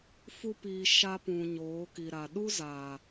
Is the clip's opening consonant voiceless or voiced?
voiceless